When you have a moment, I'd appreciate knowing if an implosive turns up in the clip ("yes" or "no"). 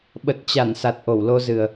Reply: yes